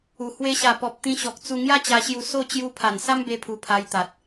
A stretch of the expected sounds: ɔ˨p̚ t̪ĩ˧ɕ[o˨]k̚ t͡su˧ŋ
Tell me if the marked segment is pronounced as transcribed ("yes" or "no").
no